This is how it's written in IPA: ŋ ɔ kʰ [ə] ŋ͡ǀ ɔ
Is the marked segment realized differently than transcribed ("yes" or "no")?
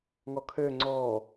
yes